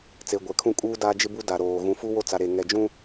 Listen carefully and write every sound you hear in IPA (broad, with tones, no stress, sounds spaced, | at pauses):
t͡s e˨ ɡʷ ɛ˨ kʰ ũ˦ kʼ uː˦ d aː˦ d͡ʒ ɪ˦ b u˦ d a˨ ɾ oː˨ ɣ ũ˨ f u˦ w o˦ t͡s a˨ ɾ e˨ ŋ ɛ˨ d͡ʒ ũ˦